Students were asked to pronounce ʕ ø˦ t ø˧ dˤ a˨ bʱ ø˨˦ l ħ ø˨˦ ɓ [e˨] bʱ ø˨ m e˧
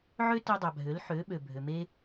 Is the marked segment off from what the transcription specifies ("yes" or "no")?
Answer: yes